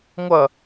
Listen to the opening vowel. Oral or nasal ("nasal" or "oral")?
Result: oral